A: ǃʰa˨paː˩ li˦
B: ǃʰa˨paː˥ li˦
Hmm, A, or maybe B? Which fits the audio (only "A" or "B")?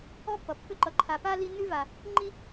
B